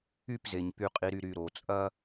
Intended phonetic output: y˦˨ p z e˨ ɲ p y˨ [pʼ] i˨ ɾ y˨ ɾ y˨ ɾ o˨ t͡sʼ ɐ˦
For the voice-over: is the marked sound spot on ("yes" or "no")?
no